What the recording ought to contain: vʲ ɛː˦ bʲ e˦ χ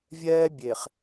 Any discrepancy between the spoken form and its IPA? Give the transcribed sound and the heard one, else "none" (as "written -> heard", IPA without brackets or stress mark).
e˦ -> e˨